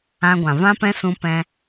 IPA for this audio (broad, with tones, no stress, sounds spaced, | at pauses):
ã˧ ɡʷ ã˨ v ã˧ p ɛ̃˧ s ũ˧ p ɛ̃˧